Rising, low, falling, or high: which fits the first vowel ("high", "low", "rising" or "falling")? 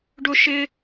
high